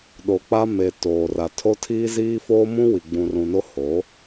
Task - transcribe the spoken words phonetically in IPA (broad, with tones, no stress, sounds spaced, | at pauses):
ɗ o˨ k͡p a˦ m e˨ t oː˨ r a˨ tʰ o˦ tʰ iː˦ z iː˦ f oː˦ m ũ˦ w i˨ ɡ͡b ũ˨ r ũ˨ n o˦ h o˨˦